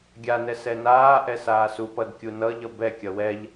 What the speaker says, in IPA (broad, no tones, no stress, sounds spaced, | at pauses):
ɡʲ a n ɛ s ɛ n aː ʔ ɛ s aː s u p ʌ d kʲ u n ʌ ʎ ʌ b ɛ kʲ ʌ w ɛ ʎ